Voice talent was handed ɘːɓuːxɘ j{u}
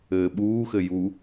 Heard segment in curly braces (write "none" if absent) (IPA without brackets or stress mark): u